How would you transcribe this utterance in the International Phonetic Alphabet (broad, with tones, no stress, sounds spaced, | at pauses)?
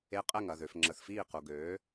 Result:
e˨˥ qʼ ɛ˧˩ ŋ ɐ˧˩ ð ø˩ f ŋ͡ǁ ə˩ θ f iː˧˩ q u˩ ɡ øː˩˧